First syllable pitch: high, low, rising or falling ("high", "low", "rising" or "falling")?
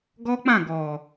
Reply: high